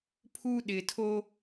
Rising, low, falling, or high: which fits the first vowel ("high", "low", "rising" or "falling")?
high